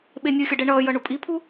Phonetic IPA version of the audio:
ɓ e nʲ ɯ xʲ ʌ ɖ ɛ ɳ ʌː j ʌ ɳ u pʼ i pʰ u

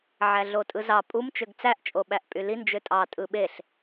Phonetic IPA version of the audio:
ʕ æ ɮ o tʼ ɯ z ɑ pʼ u m t͡ʃ ø ɡ t͡s æ ʔ t͡ʃʼ o ɓ æ ʔ pʼ y l i n d͡ʒ ø tʼ ɑ tʼ ɯ ɓ e ɬ

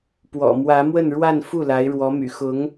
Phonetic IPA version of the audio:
p w ɔ̰˨˩ m w ä˧˥ m w ə˥˧ n ɻ w a˥˧ n f u˥˩ l a˧˥ ɪ̯ ɻ w ɔ˧˥ m y̰˨˩ x ʊ˧˥ ŋ

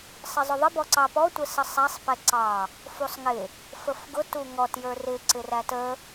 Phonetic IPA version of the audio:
sˤ ɪ zˤ ʊ ðˤ ɪ b ɔ ǀ ɑ p ɔ tʷ ə s ə sˤ æ sˤ p ɛ ǀ ɑ | f u sˤ ŋ ɪ | f ə f ɡ ʊ t u ŋ ɔ t j ə˞ r ɪ ǀ ɪ r æ t ə

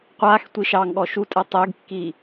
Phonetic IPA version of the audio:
qʷ aː x tʷ i ʃ ɑ ŋ ɠ ɔ ʃ u tʼ ɛ tˤ ɪː ɡ kː iː

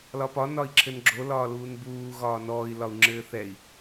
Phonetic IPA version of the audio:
l ɒ p ɒ n ɒ i̯ ǁʰ ɘ n ɡ͡ǁ o l ɒː l uː n b uː ɣ ɒː n ɔː i̯ l ɒ u̯ ŋ͡ǁ ɘː θ ɛ i̯

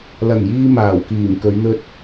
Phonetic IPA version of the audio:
l ɐ˨˩ ŋ j iː˥ m aː˨˩ w k iː˨˩ m k ɵ˨˧ ɥ n̪ ɵ˧ t̚

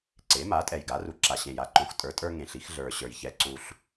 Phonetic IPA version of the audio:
ǀ e˩˥ m a˩˥ tʼ ɛ˨˩ j ɡ a˩˥ r u˨˩ ǁ a˨˩ ɕ ẽ˨˩ j a˩˥ ǃ õ˩˥ x tʼ ə˞˩˥ tʼ ə˞˦ ŋ ẽ˨˩ ɬ i˦ x ɮ ə˞˨˩ ɕ ə˞˨˩ j ç ɛ˨˩ ǀ u˨˩ ɬ

